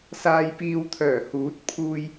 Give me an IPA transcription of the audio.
saː˨jpiː˨wt̪ʰœː˨˩ huː˨˥t̚pʰuː˧j

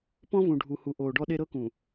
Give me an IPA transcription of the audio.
pɔ̃˦vũ˨ɖʱu˨hu˨ ʔoː˨ɖɔ˦ɗe˦ ɾɤ˦kũ˨

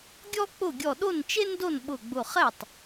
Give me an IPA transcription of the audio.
ɡʲɔ˥k͡pʊ˥˩ ɡʲɔ˧˩ɗo˥˩nt͡ʃe˥ndo˥˩n ɓʊ˧˩ɡ͡bʊ˧˩ χɛ˥˩tˤ

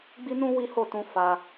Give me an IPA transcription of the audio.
ɡ͡bi˦nũ˦ wi˦ ho˦˨tũ˧ fa˧

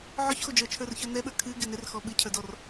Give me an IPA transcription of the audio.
ʕɔçxod͡ʒə˞ t͡ʃʰə˞rçə˞nɛɓə˞ kʰɨ ɡɪnɪrxɔ ɓɨcʰə˞dɔr

